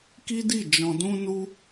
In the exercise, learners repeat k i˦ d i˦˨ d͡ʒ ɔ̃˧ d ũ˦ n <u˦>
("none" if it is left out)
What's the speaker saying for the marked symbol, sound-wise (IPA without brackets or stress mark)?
u˦